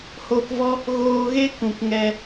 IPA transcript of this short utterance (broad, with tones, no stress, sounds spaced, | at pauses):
h oː˧ k v ɔ˦ | ɣ oː˧ ɣ e˦ k ũ˨ k ŋ ɛ˧